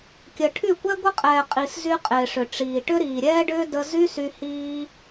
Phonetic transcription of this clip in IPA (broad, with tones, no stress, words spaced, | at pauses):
kʲə˨ʈʰy˦˨kʷɛ˦ ɡʷə˦qʼɛː˨qʼi˨szy˧ qʼɪː˨ʂʏ˨ ʈ͡ʂiː˨ʈʏ˦ ɾiː˨ɾʲɛː˦ɖʏː˦ də˦ zy˦sy˧ hiː˧